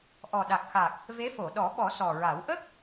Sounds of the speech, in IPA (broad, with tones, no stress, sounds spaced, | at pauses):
ʔ ɔ˨˩ ɗ a˨˩ k̚ x a˨˩ k̚ | v e˧˥ f o˨˩˨ ɗ ɔ˨˩˦ ɓ ɔ˨˩˦ s ɔ˨˩ ɹ a˨˩˦ w ʔ ə˦˥ k̚